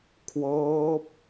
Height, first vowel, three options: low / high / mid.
mid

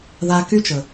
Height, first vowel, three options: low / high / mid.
low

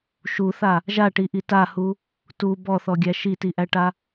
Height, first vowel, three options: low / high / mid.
high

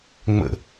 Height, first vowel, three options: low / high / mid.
mid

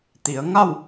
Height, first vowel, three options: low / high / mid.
high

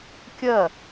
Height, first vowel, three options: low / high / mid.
low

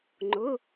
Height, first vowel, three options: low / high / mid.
high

